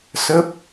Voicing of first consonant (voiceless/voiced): voiceless